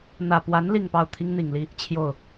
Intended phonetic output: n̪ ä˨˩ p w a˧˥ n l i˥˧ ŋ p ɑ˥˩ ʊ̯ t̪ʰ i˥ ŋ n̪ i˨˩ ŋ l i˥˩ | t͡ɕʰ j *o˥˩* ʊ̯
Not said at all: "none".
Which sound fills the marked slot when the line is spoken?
o˥˩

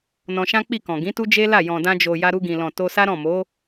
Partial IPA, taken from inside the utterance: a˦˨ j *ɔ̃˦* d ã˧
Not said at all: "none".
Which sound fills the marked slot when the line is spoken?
ɔ̃˨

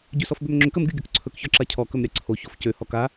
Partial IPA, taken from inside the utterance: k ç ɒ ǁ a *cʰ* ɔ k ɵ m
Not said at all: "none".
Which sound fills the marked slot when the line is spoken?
cʰ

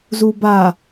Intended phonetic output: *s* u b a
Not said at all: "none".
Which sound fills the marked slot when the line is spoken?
z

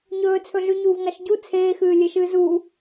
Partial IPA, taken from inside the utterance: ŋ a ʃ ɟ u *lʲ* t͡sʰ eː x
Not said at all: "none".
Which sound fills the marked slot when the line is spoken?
none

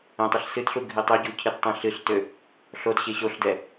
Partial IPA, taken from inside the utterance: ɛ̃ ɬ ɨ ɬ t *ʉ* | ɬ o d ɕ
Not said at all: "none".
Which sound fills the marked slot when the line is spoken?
ø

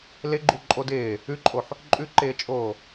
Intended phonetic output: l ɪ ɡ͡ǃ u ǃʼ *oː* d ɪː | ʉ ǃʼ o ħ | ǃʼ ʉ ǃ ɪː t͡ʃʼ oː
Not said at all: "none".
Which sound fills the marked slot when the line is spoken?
o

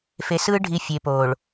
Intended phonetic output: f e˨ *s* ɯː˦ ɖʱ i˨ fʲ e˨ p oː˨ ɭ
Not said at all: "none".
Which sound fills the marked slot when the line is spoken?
s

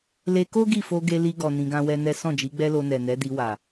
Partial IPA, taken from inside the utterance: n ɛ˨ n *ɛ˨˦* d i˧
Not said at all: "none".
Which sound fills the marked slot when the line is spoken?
ɛ˨˦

